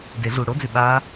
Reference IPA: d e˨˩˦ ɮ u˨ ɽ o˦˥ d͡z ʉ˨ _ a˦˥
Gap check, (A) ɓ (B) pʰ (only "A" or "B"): A